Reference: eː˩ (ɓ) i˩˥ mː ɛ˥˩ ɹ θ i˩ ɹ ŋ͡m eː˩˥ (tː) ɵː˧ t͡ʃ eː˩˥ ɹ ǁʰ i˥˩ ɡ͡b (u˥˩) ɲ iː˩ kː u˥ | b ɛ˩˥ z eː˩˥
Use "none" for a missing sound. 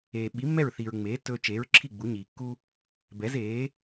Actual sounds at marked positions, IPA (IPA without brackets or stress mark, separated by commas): ɓ, tː, u˩˥